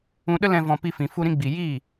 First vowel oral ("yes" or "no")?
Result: no